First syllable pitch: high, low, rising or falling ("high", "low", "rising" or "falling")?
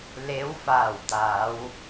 rising